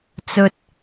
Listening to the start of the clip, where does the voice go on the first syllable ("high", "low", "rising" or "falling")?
high